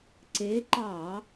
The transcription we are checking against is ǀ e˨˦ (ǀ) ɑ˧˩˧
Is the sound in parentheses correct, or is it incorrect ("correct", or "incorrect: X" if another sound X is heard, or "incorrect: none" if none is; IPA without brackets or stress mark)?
incorrect: ǃ